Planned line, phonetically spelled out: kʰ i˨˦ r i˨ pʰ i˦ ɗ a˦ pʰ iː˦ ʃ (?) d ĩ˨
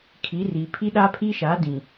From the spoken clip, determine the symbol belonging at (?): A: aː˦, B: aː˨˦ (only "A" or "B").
B